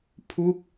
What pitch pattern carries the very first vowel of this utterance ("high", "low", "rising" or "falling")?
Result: falling